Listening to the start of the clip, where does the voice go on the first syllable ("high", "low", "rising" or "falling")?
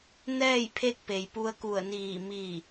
falling